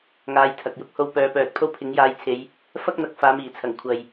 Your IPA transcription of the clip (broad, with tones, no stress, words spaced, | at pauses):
ŋaː˨˧jt̪ʰɐ˨k̚jʊ˥k̚ ho˧wpœː˨˧pœː˨t̚ pʰo˥wpʰɪ˨˥ŋjaː˧jt͡sʰe˨˧j | fɐ˥k̚n̪ɐ˨k̚ faː˨˧miː˨˩t͡sʰɐ˨˩ŋ kʷʰɐ˨j